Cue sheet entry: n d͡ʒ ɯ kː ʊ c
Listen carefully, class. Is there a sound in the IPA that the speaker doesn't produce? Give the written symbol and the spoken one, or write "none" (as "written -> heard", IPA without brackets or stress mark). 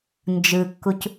ʊ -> u